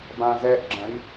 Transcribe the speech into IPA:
bãzɛʔɡ͡ǁɐ̃i̯

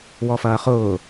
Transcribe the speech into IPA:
wɔfɐːχʊː

